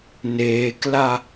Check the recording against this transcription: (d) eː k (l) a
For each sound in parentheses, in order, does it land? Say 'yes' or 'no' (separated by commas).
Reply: no, yes